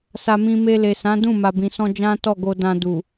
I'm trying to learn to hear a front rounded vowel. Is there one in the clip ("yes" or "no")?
no